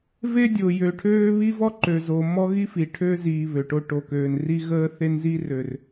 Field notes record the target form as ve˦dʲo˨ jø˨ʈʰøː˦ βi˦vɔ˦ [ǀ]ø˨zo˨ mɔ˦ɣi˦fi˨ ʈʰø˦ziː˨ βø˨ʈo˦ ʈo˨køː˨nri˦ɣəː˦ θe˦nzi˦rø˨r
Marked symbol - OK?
no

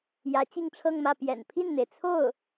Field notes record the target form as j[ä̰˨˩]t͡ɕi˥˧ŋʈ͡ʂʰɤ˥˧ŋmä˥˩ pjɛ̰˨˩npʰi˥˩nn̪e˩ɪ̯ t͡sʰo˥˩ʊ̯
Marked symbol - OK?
no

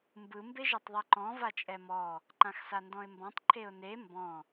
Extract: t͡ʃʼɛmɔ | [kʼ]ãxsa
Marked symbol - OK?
no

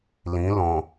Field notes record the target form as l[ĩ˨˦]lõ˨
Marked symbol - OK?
yes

